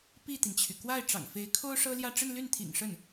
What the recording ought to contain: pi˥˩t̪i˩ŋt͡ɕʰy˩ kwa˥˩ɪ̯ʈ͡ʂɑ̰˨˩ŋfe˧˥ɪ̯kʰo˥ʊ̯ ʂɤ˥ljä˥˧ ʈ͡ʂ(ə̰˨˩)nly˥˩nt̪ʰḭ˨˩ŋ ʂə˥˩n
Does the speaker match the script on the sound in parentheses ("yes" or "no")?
no